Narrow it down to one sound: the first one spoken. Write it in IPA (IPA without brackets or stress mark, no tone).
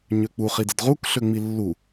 ɲ